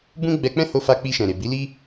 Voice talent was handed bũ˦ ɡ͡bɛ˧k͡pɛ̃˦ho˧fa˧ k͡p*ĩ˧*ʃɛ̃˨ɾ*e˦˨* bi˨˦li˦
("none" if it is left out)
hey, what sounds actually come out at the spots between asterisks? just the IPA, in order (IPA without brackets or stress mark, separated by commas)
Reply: i˧, e˨